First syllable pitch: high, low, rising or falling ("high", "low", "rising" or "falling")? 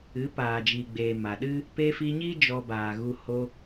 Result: rising